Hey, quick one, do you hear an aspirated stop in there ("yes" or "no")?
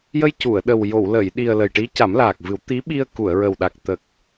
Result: no